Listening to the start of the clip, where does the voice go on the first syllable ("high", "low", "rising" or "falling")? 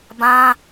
high